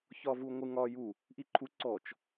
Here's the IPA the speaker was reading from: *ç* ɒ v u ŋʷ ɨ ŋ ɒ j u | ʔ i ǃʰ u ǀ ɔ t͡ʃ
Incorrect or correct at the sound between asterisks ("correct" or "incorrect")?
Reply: correct